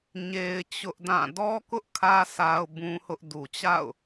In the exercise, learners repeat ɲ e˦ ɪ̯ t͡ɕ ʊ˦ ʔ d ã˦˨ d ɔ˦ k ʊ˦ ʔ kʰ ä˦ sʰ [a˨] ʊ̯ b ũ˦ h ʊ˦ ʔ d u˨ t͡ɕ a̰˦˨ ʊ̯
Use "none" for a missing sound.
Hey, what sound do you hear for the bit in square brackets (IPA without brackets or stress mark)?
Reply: a˦